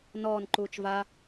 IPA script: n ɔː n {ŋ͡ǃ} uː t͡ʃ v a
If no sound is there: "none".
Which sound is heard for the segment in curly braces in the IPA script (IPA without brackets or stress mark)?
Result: ǃ